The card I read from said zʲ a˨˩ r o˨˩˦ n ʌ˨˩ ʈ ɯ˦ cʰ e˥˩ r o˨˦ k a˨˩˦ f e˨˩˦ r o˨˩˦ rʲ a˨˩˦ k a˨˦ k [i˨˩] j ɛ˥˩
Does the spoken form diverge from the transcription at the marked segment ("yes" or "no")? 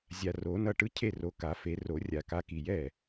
no